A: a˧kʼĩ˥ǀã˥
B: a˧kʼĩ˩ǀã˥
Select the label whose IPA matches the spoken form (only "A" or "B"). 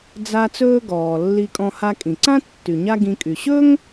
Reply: B